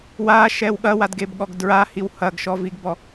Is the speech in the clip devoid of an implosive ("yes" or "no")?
no